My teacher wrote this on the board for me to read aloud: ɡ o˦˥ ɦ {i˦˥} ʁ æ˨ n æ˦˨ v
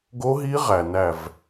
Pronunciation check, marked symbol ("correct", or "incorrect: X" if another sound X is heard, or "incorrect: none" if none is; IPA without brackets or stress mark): correct